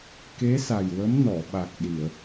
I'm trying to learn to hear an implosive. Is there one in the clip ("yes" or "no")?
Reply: yes